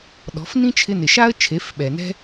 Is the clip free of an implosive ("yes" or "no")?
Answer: no